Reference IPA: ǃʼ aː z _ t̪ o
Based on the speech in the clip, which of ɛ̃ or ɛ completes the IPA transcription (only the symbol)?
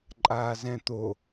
ɛ̃